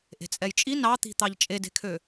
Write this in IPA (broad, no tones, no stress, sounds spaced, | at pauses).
ʔ e̤ t͡sʼ ɛ j t͡ʃʼ i n ɑ t̪ i̤ t̪ ɑ ʎ t͡ʃʼ e d e̤ kʰ ø